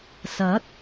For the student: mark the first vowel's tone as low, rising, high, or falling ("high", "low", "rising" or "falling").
rising